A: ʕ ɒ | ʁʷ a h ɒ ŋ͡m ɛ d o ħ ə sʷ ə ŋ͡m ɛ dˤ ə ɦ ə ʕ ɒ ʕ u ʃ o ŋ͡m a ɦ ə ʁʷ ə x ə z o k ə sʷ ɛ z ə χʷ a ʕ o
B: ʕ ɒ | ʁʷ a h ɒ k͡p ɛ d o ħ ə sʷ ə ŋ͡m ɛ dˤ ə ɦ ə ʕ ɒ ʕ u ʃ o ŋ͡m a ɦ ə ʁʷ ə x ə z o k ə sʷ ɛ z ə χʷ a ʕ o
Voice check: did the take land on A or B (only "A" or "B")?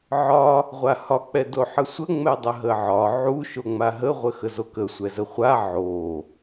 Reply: B